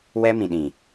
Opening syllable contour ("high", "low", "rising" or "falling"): high